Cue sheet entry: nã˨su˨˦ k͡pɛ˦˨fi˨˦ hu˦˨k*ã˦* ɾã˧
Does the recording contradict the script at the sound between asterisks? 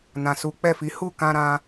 yes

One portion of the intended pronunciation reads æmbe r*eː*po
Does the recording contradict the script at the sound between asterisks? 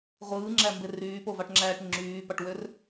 yes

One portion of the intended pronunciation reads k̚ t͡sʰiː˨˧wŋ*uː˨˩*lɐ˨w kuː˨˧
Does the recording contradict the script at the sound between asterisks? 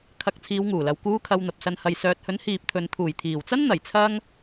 no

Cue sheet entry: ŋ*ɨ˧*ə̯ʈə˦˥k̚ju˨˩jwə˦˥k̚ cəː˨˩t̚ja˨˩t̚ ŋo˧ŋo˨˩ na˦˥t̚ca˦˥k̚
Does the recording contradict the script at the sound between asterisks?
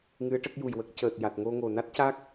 yes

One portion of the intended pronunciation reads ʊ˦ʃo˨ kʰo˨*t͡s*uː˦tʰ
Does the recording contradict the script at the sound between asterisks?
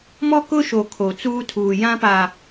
no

